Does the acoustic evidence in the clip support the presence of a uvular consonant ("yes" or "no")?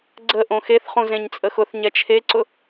yes